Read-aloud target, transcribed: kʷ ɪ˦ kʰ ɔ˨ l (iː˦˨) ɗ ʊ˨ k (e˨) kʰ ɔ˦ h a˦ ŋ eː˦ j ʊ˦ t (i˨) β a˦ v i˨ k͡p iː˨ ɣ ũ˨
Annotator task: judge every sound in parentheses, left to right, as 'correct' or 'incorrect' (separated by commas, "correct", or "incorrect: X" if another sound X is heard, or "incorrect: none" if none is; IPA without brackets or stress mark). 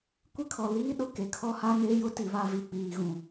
incorrect: iː˦, correct, correct